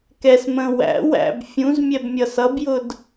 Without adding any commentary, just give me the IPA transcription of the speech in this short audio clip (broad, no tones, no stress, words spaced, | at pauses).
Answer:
kɛs mə̃ wæ̰ wæ̰b fʲũz mʲɛbmʲʌsʌbjʊd